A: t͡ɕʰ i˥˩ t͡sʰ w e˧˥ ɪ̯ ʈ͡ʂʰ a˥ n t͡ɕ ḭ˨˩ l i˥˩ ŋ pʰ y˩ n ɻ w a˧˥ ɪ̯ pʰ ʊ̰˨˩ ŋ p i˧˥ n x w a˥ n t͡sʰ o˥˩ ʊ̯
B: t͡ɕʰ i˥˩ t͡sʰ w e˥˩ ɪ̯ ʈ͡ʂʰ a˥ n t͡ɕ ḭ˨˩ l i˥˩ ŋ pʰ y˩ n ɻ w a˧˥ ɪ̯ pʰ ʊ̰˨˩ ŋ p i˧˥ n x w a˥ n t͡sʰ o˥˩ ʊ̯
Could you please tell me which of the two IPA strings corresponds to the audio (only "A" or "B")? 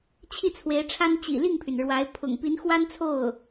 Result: A